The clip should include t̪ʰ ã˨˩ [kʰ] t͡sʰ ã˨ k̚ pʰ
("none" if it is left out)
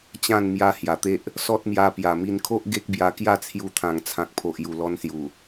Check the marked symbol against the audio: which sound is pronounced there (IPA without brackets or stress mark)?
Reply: ŋ